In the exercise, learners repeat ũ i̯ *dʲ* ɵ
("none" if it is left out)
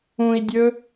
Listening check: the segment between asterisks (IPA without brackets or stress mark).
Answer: dʲ